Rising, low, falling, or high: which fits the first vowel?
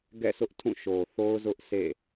falling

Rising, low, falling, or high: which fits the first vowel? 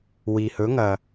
low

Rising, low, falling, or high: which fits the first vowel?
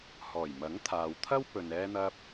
low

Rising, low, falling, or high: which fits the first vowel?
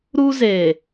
high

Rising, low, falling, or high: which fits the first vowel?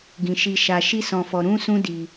low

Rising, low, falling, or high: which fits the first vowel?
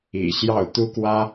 low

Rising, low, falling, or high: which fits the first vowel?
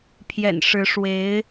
low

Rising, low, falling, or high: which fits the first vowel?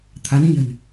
rising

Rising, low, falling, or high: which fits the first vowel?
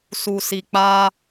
low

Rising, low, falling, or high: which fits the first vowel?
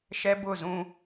high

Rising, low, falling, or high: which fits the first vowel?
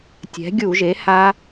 rising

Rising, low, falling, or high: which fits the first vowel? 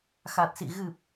low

